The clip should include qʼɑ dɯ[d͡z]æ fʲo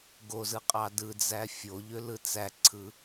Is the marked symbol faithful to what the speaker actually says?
yes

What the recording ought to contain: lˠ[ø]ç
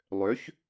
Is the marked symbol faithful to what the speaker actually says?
yes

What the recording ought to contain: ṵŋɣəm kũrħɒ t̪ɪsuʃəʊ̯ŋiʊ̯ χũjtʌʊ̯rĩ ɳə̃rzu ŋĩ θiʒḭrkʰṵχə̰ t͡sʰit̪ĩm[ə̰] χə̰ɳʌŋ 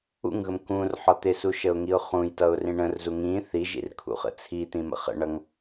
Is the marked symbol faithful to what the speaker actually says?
yes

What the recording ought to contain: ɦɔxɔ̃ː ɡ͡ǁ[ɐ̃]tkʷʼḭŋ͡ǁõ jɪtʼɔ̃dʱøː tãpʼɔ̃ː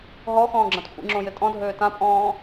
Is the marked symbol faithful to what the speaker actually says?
no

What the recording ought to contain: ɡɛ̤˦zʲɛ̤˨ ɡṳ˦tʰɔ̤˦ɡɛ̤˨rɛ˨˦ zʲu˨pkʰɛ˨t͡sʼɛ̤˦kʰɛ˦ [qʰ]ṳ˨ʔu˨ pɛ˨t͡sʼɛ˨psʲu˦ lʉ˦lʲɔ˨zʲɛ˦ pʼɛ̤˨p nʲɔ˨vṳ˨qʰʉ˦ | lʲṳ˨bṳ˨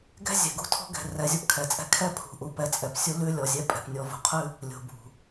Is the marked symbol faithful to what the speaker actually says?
no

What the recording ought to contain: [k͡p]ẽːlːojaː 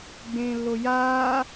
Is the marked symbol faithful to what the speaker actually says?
no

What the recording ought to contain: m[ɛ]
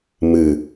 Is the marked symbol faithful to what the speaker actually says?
no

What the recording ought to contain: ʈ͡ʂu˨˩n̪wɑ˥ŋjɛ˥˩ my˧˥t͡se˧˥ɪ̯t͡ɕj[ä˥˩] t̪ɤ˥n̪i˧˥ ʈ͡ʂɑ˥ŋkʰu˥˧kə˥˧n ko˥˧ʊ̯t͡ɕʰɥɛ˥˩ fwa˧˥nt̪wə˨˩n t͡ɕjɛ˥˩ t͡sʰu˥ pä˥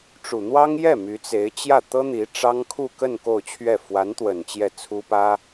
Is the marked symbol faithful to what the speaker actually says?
yes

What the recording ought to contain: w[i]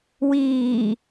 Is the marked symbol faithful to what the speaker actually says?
no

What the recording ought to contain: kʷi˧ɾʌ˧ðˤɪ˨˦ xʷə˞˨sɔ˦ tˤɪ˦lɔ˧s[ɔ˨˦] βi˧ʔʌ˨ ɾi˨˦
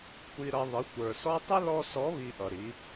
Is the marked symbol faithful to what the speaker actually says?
yes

